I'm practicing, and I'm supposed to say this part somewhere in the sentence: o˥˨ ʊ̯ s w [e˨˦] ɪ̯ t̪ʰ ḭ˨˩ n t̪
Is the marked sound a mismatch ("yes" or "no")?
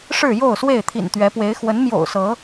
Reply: yes